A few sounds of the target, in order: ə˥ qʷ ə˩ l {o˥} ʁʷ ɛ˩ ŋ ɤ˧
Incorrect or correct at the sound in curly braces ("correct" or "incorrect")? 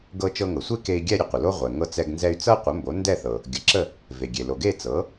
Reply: correct